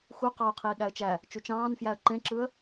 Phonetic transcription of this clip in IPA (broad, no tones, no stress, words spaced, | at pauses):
xu qɑʊ̯qʰiː ɠæə̯t͡ʃæ | t͡ʃut͡ʃɑ̃ːnfjæə̯ ǃẽǁɯə̯